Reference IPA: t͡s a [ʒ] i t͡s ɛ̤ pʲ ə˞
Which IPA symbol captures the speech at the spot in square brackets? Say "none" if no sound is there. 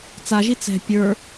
ʒ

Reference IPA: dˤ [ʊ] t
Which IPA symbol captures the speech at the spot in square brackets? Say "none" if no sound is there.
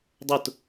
ʊ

